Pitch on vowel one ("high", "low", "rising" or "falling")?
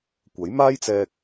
rising